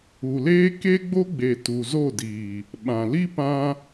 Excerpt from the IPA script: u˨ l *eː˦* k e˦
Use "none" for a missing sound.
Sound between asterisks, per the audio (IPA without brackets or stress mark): eː˦